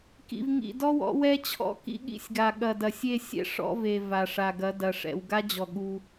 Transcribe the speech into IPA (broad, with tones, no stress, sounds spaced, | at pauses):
k ḭ˨ v ŋ ḭ˨ d ɔ˦ w ɔ̰˨˦ w ɛ˦ t͡ɕʰ ɔ̰˦ k ḭ˦ ɠ ḭ˦ sʲ ɡ a˨ ɠ ɐ˨ d ɐ˨ sʲ e˦˨ sʲ ɛ̰˦ ʂ ɔ̰˦ v e˨ v a˨ ʂ a˨ ɡ ɐ˨˦ d ɐ˨ ʂ ɛ̰˨ w ɡ a˦ d͡ʑ ɔ˨ ɠ u˦